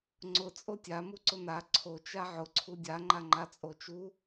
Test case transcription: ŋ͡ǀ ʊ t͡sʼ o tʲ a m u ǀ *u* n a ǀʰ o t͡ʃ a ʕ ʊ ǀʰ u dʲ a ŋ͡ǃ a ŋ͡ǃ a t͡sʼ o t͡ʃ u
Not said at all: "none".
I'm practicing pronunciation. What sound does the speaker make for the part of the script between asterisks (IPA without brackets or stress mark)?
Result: ʊ